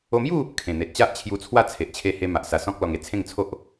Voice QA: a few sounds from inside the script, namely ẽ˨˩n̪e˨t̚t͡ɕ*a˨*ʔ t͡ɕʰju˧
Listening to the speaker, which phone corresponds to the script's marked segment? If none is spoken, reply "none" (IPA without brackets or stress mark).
a˦